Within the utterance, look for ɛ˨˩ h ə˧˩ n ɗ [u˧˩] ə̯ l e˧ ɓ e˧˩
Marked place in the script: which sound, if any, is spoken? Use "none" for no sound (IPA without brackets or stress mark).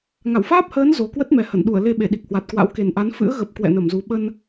u˧˩